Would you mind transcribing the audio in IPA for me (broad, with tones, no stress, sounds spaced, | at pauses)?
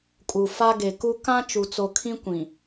kʼ u˨ f a˦ ɡ e˨ k u˦ k ã˦ t͡ʃ u˨ t͡s o˨ kʰ ĩ˦ kʷ ĩ˨